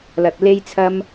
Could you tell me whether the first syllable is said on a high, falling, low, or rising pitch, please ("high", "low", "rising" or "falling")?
low